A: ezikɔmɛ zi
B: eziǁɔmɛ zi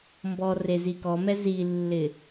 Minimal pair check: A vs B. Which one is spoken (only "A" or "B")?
A